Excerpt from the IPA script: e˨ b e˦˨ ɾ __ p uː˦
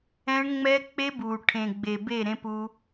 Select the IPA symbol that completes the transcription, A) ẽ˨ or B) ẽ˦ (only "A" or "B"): B